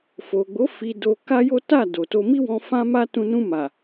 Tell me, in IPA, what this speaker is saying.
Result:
f o˨ ɡ͡b o˨˦ f i˧ d o˧ k a˦ j o˦ t a˦˨ d o˨ t o˧ m i˦ w ɔ̃˦ f ã˦ m a˦ t ũ˧ n ũ˧ m a˨

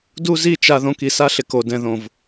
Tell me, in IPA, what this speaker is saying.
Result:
d u˦ z i˦˨ t͡ʃ a˨ ð õ˨ k i˨ s a˦ ɬ ɪ˨ k o˨ d ɛ̃˨ ð õ˨ v

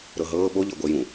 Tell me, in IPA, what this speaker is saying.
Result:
ɾ ɤ ɦ ɤː ɓ o ʎ ɤ ɡʷ ɛ j ũ

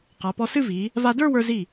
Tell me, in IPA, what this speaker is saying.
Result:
q a˩˧ p ɔ˧ s ɨ˥˧ v i˩˧ | v a˧ d ə˞˥˧ w ə˞˧ z i˧˩

